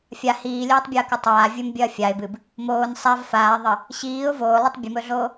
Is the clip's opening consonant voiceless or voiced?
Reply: voiceless